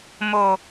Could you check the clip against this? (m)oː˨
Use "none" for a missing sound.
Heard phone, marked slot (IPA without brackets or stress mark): m